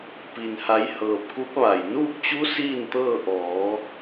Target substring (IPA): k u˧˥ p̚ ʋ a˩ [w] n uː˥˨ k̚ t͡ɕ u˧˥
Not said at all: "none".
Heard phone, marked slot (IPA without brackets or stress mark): j